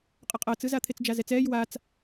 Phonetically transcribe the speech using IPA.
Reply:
qʼʌqʼʌːt͡sɯza t̪ʰet͡sd͡ʒazɛt͡sɛːj wat͡s

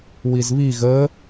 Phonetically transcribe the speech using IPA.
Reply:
wizβi ɣə

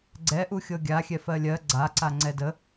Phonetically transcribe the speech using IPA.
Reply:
ɡ͡ǀɛʔuxʲɤ ɡʲaxʲɛ fɜlʲɜ ɡ͡ǀaǀa ŋ͡ǀɛdə

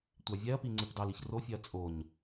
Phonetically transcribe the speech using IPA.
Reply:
tʷɑvʲɛɐ̯pi ŋ͡ǀepdɑliç rofʲɛɐ̯ t͡sʼoɲ

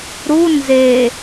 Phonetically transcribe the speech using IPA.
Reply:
ɾu nze

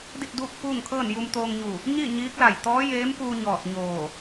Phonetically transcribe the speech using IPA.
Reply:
di˥˨t̚duː˥˨k̚fuː˥˨ŋkʰɤː˥˨n ju˧mt̪oː˧ŋɲu˧˩ | ɲi˥˨ ɲiː˧˥k̚la˧˩j t̪ɔː˧˥jeː˧˥mpuː˧ ɲɔː˧˩t̚ɲoː˧˩

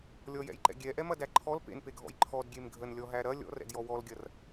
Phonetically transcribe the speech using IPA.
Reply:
lʲɔjɛ̰jǃɛ̰ ɡʲɛʔɛmɐdæ ǃʰɔl pḛnpeɡʱɔ̰j ǃʰɔdɡʲem ɡʱənlʲɔɦæ ɾɐ lʲɔ̰rɛ̰djɔ wɔlɡʲɐr

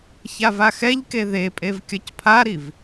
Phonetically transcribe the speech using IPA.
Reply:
çavaxɛʎke ðepʼev kʲʌcpʰaɾiv

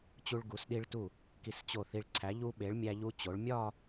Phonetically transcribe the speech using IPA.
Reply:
t͡ɕu˧ɭɡu˩˧sɗi˧ɭtu˧˩ | ki˧˩st͡ɕo˧˩θi˧ɭ ǀʰæ˩˧ʎu˧ɓe˩˧ɭ mʲæ˧ʎu˧t͡ɕo˩˧ɭ mʲɒ˥˧

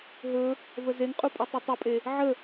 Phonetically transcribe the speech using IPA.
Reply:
ɦɵ | vəzeŋqʼu pʼɵtˤutˤɵpʼe | ʕə

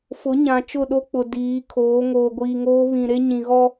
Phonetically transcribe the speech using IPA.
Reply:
fʊ˨˦ɲã˨ t͡ʃʊ˦˨ɗo˦k͡pʊ˨ diː˨˦kʰoː˨˦ ŋoː˨ɡʷiː˨ŋoː˦ βĩ˨ɾe˦ ɲĩ˨ɣɔ˦

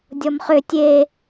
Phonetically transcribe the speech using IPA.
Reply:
dʲɔmχʏ tʲe

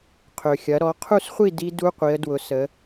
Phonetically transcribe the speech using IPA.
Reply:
qʰø˩xʲɐ˩˧ɾɔ˩˧ qʰu˥˨sχʷi˥˨ di˦˥du˧˥˧qʷi˩˧ə̯dwʊ˩˧ sə˩˧

